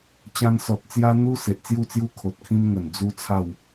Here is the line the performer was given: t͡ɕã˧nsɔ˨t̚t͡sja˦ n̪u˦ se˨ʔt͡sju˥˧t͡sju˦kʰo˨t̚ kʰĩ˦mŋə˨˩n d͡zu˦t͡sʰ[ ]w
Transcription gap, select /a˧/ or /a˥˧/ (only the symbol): a˥˧